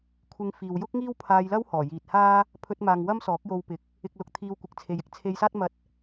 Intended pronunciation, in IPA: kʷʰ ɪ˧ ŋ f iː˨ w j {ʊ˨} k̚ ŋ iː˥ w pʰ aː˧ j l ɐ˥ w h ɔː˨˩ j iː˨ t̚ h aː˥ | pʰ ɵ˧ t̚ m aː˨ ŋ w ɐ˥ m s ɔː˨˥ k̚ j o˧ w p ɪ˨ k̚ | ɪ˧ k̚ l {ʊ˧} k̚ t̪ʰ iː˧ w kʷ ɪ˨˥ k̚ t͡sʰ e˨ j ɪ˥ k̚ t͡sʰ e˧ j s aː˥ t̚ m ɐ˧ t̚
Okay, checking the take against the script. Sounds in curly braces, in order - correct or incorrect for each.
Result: incorrect: ʊ˥, correct

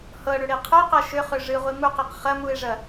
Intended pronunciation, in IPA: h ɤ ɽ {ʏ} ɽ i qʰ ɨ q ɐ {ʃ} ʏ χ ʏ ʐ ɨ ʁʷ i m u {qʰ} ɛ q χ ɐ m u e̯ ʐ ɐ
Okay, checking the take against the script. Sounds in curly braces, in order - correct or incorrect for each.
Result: correct, correct, incorrect: q

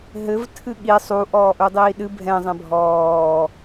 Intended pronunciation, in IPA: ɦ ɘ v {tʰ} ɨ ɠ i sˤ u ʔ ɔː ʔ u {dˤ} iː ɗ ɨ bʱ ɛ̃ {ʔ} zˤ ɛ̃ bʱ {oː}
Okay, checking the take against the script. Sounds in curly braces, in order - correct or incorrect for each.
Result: correct, correct, incorrect: none, incorrect: ɔː

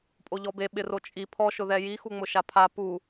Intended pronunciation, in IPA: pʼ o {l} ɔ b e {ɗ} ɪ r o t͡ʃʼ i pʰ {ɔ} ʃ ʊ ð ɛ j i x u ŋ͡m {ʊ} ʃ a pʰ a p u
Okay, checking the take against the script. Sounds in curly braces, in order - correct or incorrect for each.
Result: incorrect: ʎ, incorrect: ɓ, correct, correct

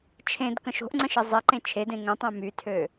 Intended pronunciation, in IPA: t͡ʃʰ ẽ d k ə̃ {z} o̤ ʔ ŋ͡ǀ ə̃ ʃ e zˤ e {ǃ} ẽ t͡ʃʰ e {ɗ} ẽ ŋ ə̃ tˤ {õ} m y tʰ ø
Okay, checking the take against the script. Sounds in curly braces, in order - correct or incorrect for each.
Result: incorrect: ʃ, correct, incorrect: d, correct

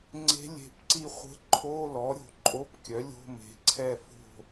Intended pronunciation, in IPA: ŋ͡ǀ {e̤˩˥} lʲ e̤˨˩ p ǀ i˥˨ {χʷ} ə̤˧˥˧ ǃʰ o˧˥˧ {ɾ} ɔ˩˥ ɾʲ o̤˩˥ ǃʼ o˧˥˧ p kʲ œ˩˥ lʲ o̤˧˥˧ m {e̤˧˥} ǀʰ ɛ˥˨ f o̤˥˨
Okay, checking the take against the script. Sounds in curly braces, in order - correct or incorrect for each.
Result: incorrect: e̤˧˥, correct, incorrect: l, incorrect: e̤˩˥

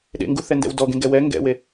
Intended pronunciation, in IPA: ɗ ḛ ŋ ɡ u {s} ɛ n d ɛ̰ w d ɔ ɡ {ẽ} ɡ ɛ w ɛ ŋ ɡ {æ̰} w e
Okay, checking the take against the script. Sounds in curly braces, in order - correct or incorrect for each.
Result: incorrect: θ, correct, incorrect: ɛ̰

